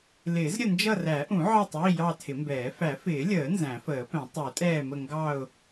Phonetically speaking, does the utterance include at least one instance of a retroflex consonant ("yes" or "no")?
no